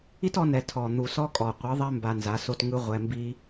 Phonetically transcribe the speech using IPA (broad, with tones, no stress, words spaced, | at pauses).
i˦tɔ˧nɛ˨ tʰɔ˨ n̪u˨sɔ˦kʼɔ˨ qʷɯ˨˦ðˤɛ˦ mba˧nza˨˦so˦t ŋɯ˧ ʁʷɛ˧mbi˦